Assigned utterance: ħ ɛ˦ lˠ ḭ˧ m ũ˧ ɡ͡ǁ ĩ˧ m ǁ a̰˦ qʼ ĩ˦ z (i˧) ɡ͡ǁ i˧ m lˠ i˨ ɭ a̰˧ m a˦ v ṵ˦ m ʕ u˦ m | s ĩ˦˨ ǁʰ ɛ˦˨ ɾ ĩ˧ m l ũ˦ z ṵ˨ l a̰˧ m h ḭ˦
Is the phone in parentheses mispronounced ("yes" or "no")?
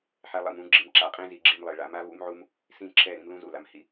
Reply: no